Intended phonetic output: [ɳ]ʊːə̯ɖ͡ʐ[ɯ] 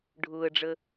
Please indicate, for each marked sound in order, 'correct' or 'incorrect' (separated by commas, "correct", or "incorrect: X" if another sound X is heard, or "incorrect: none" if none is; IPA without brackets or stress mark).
incorrect: ɖʱ, incorrect: ə